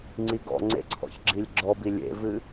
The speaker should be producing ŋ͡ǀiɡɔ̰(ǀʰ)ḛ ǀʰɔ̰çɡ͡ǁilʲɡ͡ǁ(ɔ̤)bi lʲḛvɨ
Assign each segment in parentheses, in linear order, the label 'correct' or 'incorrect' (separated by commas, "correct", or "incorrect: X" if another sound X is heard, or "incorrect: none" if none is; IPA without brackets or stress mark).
incorrect: ŋ͡ǀ, incorrect: ɔ